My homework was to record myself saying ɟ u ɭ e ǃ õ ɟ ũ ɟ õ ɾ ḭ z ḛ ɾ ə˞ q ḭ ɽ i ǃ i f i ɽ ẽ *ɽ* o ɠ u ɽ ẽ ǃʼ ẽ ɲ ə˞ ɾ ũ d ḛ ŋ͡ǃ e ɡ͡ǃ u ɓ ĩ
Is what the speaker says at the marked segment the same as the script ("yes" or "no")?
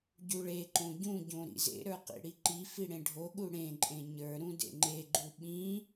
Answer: no